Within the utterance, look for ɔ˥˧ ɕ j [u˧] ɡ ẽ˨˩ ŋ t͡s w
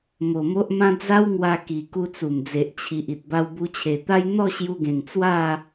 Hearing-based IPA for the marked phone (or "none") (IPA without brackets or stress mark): u˧